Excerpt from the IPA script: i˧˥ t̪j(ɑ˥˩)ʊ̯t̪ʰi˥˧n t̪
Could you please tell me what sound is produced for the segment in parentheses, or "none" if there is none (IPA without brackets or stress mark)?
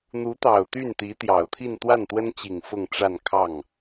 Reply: ɑ˨˩